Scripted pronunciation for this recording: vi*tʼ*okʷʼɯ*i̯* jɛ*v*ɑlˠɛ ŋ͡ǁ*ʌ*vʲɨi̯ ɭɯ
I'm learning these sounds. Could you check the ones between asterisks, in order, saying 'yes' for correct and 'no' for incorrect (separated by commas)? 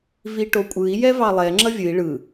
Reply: no, yes, yes, yes